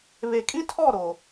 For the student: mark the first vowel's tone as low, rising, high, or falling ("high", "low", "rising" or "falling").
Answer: low